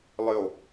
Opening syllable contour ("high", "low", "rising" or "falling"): falling